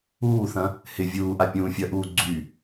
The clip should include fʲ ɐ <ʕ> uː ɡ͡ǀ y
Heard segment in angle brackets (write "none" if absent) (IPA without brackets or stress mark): ʔ